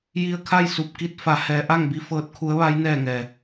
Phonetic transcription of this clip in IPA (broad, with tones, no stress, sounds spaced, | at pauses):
j i˧ ə̯ kʰ a˥˨ j s u˧˩ p̚ k i˧ t̚ f a˩˧ h ɛː˩˧ ʔ a˥˨ ŋ b i˧ f ɤː˧˥ t̚ kʰ u˧˥ ə̯ ʋ a˧˥ j n ɛː˥˨ ŋ ɛː˩